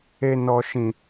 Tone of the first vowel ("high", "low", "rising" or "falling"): high